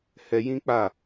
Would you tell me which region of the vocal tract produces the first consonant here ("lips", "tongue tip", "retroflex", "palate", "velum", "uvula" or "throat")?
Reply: throat